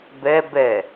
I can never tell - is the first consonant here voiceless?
no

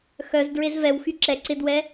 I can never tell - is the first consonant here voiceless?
yes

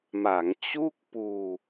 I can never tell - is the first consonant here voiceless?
no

